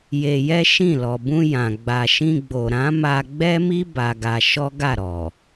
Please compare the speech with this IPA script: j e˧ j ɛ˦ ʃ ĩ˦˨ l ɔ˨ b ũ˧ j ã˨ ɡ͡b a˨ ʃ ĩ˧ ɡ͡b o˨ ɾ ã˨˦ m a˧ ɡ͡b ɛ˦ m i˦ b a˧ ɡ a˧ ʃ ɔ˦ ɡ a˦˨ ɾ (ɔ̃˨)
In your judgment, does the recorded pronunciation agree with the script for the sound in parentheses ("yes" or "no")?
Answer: no